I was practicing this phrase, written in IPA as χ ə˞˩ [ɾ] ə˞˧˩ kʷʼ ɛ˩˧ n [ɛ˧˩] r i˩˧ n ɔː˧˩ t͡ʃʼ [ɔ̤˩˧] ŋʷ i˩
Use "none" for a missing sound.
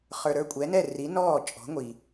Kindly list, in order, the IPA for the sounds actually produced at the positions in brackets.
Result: ɾ, ɛ˧˩, ɔ̤˩˧

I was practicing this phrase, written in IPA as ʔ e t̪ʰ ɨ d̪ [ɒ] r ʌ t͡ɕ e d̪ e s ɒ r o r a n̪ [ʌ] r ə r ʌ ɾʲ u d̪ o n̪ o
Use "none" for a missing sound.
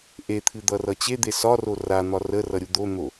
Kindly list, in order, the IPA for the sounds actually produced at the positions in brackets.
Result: ʌ, ɒ

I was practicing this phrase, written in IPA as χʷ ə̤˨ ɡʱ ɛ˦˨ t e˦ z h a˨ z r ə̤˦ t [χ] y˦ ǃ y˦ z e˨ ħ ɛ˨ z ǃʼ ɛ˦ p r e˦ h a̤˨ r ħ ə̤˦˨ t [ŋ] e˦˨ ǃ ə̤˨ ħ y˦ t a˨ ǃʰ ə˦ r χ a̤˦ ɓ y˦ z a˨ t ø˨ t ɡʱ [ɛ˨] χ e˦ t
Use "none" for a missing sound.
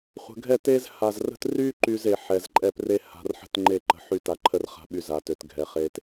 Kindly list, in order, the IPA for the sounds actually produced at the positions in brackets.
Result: r, ŋ͡ǃ, ɛ˨

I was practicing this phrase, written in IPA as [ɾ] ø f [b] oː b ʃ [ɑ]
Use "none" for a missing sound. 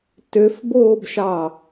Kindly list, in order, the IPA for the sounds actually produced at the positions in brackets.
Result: t, b, ɑ

